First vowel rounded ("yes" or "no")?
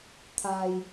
no